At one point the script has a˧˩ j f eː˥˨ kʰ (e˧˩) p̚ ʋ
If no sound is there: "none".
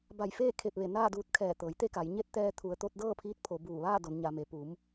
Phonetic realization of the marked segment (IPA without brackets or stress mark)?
e˧˩